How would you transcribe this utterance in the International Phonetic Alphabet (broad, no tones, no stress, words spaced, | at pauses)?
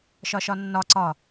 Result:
ʃɒʃɒnːɒ ǀɒ